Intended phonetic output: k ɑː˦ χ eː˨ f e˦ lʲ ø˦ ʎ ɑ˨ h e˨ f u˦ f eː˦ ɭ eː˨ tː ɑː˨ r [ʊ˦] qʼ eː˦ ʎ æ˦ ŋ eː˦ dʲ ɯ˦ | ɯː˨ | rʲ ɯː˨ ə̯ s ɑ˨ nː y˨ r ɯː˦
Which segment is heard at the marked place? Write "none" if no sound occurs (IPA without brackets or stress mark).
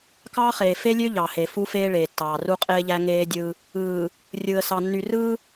u˦